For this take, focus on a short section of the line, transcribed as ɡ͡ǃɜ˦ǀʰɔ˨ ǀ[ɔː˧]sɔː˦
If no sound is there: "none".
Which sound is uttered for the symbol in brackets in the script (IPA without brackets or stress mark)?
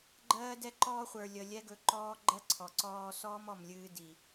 ɔː˧